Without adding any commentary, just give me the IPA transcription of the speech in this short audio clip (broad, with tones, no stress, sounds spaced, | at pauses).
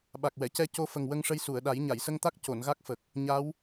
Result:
ɓ a˨˩ k̚ w ɛ˨˩˨ c ɛ˧ c o˧ f ə˨˩ ŋ w ə˧ ŋ ʂ ə˧ j s u˨˩˨ ə̯ ɗ a˨˩˦ j ɲ a˨˩˨ j s ə˧ ŋ t̪ a˦˥ k̚ c o˨˩˨ n ɣ a˦˥ k̚ f ə˨˩ k̚ | ɲ a˧˥ w